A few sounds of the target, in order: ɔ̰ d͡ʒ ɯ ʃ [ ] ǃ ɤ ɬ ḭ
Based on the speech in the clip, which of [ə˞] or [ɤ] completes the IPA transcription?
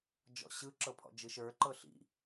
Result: ə˞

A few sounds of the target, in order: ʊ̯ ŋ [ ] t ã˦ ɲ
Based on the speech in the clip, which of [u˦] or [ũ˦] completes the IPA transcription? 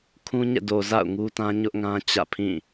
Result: u˦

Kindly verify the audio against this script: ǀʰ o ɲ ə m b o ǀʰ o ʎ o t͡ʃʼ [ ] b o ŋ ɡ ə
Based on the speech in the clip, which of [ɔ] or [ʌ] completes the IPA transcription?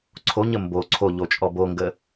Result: ɔ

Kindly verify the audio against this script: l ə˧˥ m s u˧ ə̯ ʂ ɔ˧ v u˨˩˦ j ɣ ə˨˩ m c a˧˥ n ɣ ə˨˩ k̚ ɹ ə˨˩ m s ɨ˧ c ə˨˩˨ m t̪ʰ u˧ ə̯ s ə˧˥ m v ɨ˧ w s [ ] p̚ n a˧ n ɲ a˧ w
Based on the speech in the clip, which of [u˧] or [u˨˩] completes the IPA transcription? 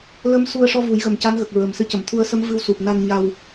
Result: u˨˩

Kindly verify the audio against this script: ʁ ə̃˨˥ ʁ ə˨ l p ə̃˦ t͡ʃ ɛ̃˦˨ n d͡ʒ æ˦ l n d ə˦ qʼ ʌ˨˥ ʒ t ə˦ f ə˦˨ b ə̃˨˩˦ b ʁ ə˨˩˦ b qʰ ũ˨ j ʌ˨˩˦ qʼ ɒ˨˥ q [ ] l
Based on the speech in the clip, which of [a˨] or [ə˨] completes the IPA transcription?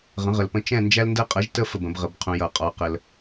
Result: ə˨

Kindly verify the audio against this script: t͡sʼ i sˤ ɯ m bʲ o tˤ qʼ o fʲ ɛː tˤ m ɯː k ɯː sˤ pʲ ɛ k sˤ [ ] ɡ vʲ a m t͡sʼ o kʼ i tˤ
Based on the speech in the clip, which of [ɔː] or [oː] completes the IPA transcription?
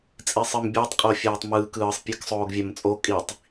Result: oː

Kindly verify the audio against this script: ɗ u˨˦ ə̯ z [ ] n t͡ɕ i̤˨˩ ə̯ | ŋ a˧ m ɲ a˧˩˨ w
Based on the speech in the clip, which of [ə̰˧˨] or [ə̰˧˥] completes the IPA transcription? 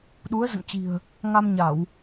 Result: ə̰˧˨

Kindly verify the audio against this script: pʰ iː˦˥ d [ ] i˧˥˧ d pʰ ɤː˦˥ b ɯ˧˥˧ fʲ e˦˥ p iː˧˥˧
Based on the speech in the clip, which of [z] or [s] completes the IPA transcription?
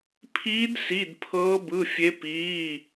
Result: s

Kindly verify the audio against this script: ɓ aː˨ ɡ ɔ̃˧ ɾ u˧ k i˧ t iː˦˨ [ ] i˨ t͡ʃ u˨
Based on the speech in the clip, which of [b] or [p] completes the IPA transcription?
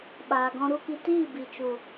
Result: b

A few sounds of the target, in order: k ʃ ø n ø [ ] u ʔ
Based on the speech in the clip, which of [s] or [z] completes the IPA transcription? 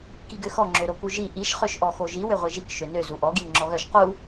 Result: z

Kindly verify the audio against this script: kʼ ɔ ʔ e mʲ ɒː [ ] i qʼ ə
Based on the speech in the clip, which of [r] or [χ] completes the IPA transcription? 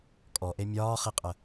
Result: χ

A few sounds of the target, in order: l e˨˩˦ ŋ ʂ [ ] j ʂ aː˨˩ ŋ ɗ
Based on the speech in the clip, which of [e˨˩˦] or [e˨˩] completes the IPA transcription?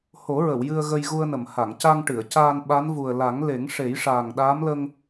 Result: e˨˩˦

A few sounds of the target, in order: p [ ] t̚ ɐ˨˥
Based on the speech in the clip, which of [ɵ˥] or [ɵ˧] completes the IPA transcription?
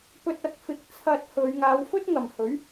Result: ɵ˧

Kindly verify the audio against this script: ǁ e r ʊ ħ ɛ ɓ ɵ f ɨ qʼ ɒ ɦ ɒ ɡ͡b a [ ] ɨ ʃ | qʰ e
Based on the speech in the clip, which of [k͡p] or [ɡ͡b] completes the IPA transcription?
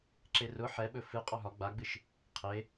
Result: ɡ͡b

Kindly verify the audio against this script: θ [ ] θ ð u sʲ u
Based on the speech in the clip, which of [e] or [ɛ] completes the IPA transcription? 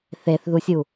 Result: e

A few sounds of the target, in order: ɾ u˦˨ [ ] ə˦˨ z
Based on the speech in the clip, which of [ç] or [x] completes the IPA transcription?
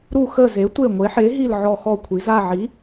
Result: x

